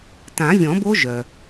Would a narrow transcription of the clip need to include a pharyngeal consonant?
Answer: no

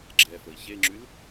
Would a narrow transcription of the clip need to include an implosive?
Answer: no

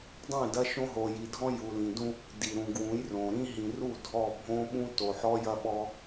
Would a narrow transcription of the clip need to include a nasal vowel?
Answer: yes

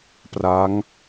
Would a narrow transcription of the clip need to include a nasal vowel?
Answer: no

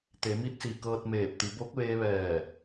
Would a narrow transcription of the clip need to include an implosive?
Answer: no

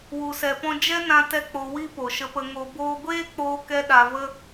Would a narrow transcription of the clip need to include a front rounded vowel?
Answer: no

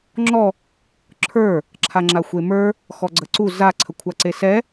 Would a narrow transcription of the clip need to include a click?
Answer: yes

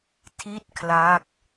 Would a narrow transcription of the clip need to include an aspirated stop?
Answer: yes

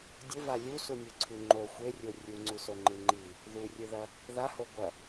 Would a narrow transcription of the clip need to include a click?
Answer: yes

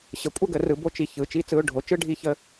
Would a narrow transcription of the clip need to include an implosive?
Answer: no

